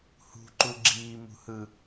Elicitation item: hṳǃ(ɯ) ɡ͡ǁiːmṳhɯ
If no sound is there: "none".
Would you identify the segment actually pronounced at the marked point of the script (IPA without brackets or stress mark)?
u